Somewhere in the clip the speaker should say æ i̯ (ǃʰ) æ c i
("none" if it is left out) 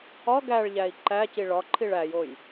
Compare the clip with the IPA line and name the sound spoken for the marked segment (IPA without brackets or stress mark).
ǃ